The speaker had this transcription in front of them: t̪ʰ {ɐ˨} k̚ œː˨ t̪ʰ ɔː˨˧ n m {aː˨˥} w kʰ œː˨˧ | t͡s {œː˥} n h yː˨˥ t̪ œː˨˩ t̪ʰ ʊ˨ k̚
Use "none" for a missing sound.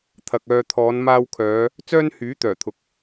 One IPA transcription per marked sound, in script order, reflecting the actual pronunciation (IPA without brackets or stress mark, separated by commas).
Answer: ɐ˨, aː˧, œː˥